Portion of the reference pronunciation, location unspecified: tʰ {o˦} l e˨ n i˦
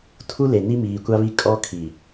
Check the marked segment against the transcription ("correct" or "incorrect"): incorrect